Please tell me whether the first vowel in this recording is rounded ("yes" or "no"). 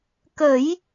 no